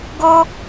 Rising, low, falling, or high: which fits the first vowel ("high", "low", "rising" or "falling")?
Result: high